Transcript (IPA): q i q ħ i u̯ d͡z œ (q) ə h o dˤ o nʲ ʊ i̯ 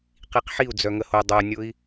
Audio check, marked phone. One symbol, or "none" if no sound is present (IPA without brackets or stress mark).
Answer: ŋ